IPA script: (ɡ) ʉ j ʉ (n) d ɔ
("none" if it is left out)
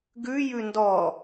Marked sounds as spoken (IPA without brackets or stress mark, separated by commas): ɡ, n